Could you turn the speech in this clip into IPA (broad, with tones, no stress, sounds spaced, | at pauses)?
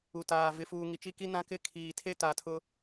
u˨ t aː˨ v ɪ˨ f uː˨ ŋ i˨ t͡ʃ i˦ k i˦ n ã˦ k ɪ˦˨ kʰ iː˨ tʰ e˦ t aː˨ tʰ ʊ˦